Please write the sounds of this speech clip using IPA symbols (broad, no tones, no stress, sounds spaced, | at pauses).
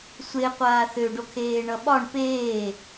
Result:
sʷ e qʷ aː θ ø ɖ o kʰ eː ɳ ʌ ɓ ɒ ɳ p eː